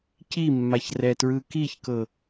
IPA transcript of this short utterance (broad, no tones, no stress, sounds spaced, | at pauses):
c i mː a ç r ɛ t ɹ ɯ k i ç k ɤ